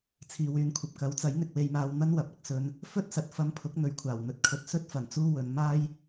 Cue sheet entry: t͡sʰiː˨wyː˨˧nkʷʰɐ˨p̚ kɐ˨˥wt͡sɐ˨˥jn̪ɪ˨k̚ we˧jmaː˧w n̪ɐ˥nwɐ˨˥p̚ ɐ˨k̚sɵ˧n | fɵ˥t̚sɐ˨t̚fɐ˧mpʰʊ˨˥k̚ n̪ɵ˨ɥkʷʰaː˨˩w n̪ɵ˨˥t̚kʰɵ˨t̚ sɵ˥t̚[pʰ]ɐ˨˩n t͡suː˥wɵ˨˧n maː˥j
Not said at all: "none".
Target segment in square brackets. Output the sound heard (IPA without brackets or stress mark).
f